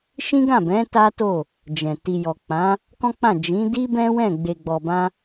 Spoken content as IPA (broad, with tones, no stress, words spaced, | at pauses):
ʃĩ˦ɡã˦˨bɛ̃˨˦ ta˦to˦˨ | d͡ʒɛ̃˨ ti˨jɔ˨k͡pã˨˦ | kɔ̃˦k͡pã˦˨ d͡ʒĩ˨˦di˦ bɛ̃˦wɛ̃˦˨ ɡ͡be˨ɡ͡bɔ˨bã˧